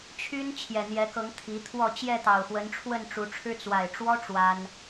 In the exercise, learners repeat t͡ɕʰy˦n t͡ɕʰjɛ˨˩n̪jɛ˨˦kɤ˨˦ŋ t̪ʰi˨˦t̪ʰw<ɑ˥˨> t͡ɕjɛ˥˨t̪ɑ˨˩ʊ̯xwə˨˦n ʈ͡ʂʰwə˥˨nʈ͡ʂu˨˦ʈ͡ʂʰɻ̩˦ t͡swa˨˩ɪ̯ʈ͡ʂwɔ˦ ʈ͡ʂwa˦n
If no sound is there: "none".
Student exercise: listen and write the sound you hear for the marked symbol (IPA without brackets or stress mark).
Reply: ɔ˥˨